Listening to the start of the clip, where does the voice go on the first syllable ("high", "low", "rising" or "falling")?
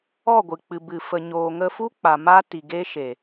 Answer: falling